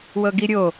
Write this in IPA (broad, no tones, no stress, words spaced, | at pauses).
wɤɡiɾʲo